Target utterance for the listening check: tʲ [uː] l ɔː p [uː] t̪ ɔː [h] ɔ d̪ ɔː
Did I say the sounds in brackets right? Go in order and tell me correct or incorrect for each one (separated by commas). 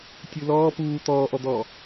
incorrect, correct, incorrect